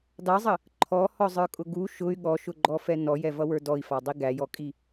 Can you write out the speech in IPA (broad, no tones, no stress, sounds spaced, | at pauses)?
d ɑ zˤ ə | ǃʰ ɔ h ɔ zˤ ə˞ kʼ ʊ ɡ u ʃ ʊ y̯ ɠ ɔ ʃ ʊ ɡ͡ǃ ɔ f ɛ n ɔ j ɛ v ʌ w ə˞ d ɔ i̯ f ɑ dˤ i ɡ æ j ɔ kʼ i